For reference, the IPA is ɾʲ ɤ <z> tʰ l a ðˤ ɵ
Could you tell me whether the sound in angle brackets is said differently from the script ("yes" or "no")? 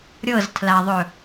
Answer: no